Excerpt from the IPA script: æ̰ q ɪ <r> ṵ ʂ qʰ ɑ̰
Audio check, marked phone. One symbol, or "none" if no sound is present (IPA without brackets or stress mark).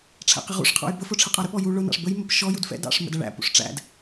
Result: ʁ